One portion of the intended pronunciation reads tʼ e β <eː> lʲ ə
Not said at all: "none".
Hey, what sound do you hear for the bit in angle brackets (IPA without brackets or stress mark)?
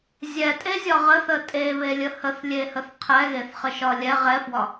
e